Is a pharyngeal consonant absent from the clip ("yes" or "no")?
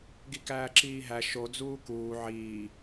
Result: no